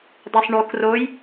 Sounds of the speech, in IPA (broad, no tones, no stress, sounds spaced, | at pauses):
dˤ o sˤ ɳ o k r o j